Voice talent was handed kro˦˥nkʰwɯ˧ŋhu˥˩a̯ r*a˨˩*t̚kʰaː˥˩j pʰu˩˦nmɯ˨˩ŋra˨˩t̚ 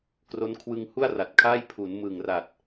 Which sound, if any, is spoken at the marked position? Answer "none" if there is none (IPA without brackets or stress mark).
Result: a˨˩